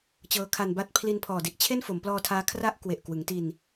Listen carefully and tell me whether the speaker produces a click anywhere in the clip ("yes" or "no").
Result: no